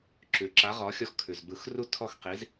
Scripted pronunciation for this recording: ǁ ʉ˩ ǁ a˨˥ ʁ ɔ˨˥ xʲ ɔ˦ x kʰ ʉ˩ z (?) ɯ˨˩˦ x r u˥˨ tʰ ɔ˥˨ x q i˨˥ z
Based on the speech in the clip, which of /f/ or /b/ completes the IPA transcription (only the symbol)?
b